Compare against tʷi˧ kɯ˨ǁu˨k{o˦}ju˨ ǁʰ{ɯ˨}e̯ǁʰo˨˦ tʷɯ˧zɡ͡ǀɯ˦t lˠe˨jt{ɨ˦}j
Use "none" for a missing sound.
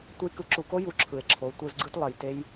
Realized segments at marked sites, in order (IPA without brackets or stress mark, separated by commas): o˦, ɯ˨, e˦